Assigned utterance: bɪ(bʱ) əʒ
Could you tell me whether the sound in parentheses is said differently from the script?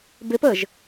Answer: yes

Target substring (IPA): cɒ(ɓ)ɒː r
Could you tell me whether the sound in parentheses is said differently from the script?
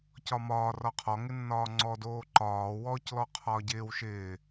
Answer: yes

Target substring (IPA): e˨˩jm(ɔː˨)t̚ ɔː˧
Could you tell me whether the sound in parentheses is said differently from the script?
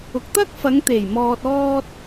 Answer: no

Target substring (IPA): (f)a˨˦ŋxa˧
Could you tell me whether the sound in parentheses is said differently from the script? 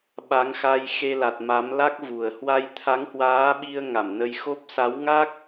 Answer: yes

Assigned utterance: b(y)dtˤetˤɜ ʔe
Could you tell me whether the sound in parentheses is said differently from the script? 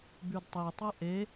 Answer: no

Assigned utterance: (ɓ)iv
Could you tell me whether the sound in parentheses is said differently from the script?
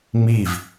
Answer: yes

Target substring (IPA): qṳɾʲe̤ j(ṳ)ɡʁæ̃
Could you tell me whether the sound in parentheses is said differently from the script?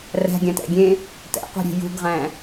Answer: no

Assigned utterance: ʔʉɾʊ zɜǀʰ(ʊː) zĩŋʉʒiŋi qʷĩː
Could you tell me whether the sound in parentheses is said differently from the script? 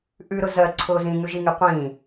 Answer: no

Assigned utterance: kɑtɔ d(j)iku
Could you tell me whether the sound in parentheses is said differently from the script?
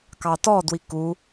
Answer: yes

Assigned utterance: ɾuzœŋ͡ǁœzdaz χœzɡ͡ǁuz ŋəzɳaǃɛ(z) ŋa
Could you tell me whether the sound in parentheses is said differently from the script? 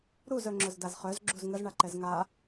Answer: no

